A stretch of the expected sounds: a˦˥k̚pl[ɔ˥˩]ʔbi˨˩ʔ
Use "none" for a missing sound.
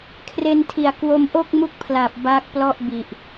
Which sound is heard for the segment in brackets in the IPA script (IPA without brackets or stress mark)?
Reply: ɔ˥˩